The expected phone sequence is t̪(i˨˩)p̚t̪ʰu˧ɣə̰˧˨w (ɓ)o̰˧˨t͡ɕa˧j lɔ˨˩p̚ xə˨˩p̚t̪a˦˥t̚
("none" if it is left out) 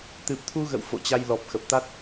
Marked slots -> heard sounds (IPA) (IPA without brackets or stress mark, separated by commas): ɨ˨˩, f